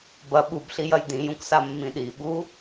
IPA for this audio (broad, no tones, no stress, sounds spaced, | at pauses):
b ɐ ɓ u b ɬ i j ɐ j d ĩ j ũ k s a mː ĩ ɗ i ɓ u